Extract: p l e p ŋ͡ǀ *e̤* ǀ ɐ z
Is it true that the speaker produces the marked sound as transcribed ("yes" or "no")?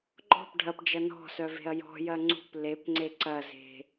no